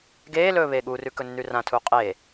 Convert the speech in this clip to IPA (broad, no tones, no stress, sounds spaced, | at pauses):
ɡ eː l ɵː β e ɠ u r ʉ k ɵ nː ʉ r ã tʰ u qʼ e